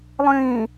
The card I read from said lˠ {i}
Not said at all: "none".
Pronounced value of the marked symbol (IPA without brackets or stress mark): ĩ